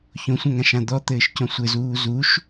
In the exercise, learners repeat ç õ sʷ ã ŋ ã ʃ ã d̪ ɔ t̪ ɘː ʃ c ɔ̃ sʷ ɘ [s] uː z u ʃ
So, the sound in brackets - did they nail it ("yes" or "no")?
no